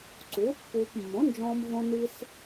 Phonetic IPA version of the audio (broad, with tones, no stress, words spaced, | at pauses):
ǀuː˩˥ pːuː˧p mːõ˩˥nd͡ʒɔ̃ː˧mvõ˧ ni˧s